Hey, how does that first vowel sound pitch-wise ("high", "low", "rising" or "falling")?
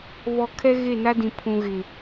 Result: low